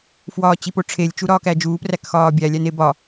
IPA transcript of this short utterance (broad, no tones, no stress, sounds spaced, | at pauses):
f w ɒː t͡ɕ i p o ʈ͡ʂʰ e lʲ t͡ʃ u ɾ ɒː k æ d͡ʒ uː p r æ k x ɒː bʲ æ lʲ æ n e b ɒ